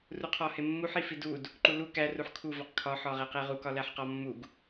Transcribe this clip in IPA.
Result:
r u qʰ ɒ h e mː u ħ i f i d u d | ǃ u l u k æ r u ħ kʰ u v ɒ q kʰ ɒ ħ ɒ ʁ e q e ʁ u k ɒ l æ ħ q ɒ mː u ɡ

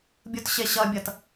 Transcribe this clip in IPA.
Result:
bʲ u t ɕ e ɕ ʌ bʲ ʌ t

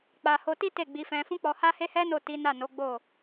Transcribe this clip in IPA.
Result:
k͡p a˧ h o˧ t i˦ t e˦˨ ɡ͡b i˧ f ɛ̃˧ f ũ˦ k͡p ɔ˧ h a˦ h e˦ h ɛ˦ n o˦˨ t i˨˦ n a˦˨ n o˨˦ ɡ͡b o˦˨

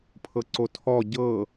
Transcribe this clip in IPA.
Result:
pʰ ɤ ǀ o tʰ ɔ ɟ ɤ

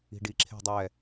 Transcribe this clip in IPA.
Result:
i̤ ɖ i ǁʰ e̤ dˤ ɛ

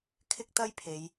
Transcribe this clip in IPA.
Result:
kʰ ɪ˥ k̚ t̪ ɐ˥ j pʰ e˨˧ j

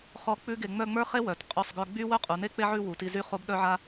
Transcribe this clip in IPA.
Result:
χ ɔ˥˧ k͡p ʉ˥ ɡ e˧ ŋ͡m œ˥˧ ŋ͡m ə˞˥ χ e˥ w œ˩˧ t qʼ ʉ˧˩ sˤ ɡ œ˧ ɡ͡b y˥ w œ˥ qʼ u˩˧ n e˥ k͡p e˥ ʕ ʉ˥˧ w u˩˧ t i˧ z y˥˧ χ o˥ b ɗ œ˥ ʕ a˥

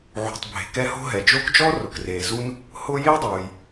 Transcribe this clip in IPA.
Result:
ʕ ṳ˨ tˤ bʱ e̤˨ k ɛ˦ h o̤˥ ɦ ɛ˩ d͡ʒ o˥ k d͡ʒ ɔ˥ r ʊ˩ k r eː˩ z u˥ n | h ʊː˦ j e˥ dˤ uː˩ j

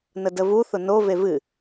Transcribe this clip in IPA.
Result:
n ə d ə v u θ ʊ n o v e v ɨ

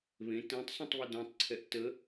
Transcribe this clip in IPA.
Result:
β ẽ t ɛ̃ tˤ sˤ ũ tˤ β ə d œ̃ tˤ ǀʰ ɛ ʔ t ə

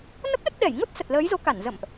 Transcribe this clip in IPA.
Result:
n ə˦˥ p̚ ɗ ə˦˥ t̚ ɗ ɛ˧˩ j ŋ o˦˥ t̚ s ə˨˩ t̚ l əː˨˦ j z o˨˦ k a˧˩ n z ə̰˧˨ m ʔ

